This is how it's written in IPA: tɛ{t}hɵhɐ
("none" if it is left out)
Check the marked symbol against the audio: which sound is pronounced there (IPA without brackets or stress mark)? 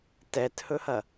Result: t